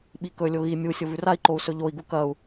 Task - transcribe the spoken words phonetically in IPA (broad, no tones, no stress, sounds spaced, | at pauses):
ɓ i k ɵ lʲ o ɣ i mʲ u sʲ o v ʉ r a i̯ ǃ o u̯ s ɵ ʎ o i̯ ɡ u k ɐ u̯